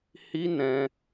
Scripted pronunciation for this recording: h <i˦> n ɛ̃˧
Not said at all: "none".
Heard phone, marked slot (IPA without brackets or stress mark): i˦